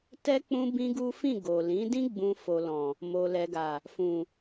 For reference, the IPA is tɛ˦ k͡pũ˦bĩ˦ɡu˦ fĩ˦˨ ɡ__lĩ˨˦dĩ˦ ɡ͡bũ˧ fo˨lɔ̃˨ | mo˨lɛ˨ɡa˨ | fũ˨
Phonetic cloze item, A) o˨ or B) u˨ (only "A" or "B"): A